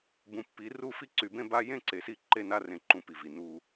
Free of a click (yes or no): no